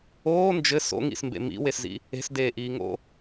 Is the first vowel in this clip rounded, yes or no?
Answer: yes